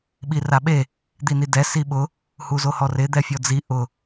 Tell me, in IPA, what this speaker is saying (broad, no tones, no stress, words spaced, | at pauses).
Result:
ɓiraɓe | d̪inidɛ siɓʊ | huzohɔrɪ d̪ɛfʲɔd͡zi ʔʊ